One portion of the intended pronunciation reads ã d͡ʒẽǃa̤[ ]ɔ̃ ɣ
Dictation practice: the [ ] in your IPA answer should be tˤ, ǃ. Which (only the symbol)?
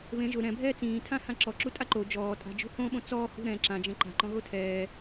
ǃ